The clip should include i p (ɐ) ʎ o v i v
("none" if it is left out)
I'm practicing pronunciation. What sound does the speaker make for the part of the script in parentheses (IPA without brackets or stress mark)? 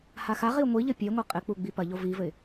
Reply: ɐ